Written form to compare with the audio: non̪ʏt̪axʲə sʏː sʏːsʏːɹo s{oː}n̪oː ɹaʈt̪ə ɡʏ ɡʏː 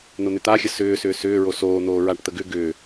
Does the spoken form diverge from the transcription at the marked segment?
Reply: no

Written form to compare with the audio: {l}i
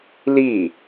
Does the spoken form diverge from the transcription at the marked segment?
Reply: no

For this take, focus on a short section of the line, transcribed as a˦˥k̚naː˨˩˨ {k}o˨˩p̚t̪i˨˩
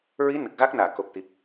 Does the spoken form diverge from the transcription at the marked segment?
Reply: no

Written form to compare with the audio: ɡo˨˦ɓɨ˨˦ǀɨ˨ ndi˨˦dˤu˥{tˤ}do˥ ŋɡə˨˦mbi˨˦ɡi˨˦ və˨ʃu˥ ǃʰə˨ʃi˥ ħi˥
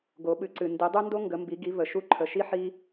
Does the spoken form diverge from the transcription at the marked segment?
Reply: yes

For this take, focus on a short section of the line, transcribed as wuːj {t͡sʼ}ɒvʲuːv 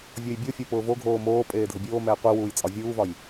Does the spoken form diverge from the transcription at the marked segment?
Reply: no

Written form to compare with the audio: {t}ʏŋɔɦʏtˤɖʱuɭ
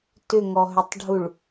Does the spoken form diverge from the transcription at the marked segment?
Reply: no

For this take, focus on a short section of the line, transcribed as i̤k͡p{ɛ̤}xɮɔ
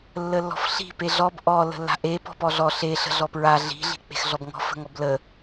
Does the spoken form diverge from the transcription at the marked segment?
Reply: yes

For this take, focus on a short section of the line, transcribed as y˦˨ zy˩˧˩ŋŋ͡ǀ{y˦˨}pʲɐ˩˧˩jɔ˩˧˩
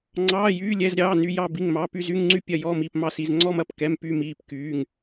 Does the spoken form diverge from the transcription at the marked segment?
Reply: no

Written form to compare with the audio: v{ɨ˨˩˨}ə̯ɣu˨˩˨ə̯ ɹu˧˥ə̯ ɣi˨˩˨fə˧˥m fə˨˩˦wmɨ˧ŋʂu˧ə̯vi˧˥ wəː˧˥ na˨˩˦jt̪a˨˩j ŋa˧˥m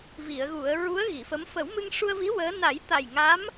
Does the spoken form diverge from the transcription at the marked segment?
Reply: yes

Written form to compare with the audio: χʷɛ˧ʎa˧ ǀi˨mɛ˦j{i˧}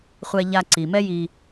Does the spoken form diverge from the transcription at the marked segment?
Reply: no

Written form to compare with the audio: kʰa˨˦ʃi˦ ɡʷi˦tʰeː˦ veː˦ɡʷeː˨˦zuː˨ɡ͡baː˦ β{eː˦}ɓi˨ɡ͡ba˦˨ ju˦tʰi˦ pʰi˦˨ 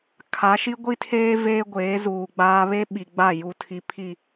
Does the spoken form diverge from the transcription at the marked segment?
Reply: yes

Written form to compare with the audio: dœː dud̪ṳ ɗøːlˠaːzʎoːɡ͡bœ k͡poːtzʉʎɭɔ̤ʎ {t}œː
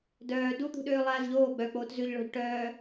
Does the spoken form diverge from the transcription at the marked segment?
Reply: yes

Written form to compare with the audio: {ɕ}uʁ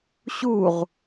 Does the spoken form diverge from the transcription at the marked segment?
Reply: no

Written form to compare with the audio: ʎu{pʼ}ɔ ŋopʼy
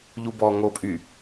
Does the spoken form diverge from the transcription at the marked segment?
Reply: yes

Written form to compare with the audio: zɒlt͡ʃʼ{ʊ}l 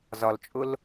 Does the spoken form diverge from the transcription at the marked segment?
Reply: no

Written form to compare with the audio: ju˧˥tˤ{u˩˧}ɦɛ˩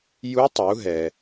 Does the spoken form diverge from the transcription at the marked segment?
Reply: no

